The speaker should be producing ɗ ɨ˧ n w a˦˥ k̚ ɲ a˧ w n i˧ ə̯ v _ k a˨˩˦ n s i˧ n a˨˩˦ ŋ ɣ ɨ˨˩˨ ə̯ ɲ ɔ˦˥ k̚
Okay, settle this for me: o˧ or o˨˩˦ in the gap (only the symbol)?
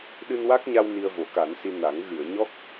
o˨˩˦